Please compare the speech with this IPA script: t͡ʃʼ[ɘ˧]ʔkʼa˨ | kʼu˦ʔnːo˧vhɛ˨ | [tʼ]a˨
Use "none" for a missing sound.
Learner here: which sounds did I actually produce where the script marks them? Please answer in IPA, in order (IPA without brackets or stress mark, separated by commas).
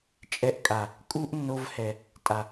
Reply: ɛ˧, tʼ